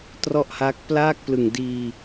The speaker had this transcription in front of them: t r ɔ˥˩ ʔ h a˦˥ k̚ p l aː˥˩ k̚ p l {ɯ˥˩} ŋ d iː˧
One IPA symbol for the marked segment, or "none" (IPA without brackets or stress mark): ɯ˨˩